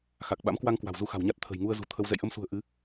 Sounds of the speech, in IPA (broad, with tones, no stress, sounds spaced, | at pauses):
x a˨˩ k̚ ɓ a̰˧˥ m k w a˧ ŋ k w a̤˨˩ w z u˧ x a̤˨˩ w ɲ a˦˥ t̚ t̪ʰ ə̤˨˩ j ŋ u˧ ə̯ z ṳ˨˩ t̪ʰ ə˧ w z ɛ̰˧˨ j ʔ ə˧ m s ṳ˨˩ ə̯ ʔ ɨ˨˦